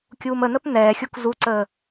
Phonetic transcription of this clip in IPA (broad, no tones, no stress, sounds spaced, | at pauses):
kʲ uː m ə n̪ ə p n̪ ɛː xʲ u k z u ǀ əː